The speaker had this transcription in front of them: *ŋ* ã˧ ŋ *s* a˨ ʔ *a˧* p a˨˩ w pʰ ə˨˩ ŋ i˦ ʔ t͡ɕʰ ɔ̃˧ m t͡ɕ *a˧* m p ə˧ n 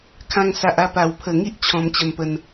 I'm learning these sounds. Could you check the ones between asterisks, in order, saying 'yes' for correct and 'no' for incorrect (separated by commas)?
no, yes, yes, no